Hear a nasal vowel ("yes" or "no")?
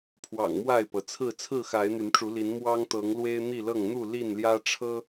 no